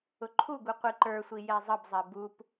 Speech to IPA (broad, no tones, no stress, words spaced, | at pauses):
ʊǃʰuɡu qʷiǃə˞sʷi jɛzˤəbzˤɛ bup